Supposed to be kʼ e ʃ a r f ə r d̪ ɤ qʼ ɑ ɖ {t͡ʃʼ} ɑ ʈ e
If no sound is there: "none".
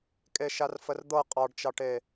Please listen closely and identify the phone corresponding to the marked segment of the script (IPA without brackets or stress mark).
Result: t͡ʃ